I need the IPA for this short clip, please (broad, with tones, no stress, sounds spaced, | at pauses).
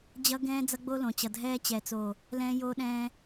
d͡ʑ ʌ˦ ɡ ɛ̃ː˦ d͡z ʌ˦ ɡ͡b o˦ l õ˨ t͡ɕ ʌ˨ dʱ ɛː˦ t͡ɕ ɛː˨ t͡s o˨ | l ɛ̃ː˦ j oː˦ ɗ ɛ̃ː˦